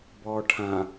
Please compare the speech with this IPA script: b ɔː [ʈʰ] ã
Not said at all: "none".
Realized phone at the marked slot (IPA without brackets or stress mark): ʈʰ